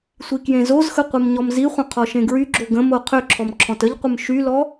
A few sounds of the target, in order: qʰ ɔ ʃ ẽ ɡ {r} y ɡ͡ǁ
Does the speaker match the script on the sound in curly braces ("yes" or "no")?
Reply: no